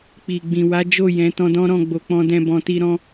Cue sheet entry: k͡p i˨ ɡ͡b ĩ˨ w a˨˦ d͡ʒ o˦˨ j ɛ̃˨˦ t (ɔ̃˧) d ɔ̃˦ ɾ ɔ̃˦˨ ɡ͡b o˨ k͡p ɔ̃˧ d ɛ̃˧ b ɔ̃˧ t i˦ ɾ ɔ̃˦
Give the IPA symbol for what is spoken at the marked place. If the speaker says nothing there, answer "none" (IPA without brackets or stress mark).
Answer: ɔ̃˧